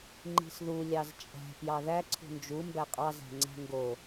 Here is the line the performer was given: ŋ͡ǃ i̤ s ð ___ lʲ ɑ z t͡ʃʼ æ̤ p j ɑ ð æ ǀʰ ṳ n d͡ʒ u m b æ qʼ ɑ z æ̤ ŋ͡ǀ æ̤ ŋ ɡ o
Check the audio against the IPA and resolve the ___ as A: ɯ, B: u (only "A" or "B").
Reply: B